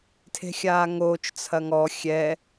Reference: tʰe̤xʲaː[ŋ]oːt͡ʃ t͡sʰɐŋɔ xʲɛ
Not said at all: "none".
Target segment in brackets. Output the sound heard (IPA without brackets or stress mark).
ŋ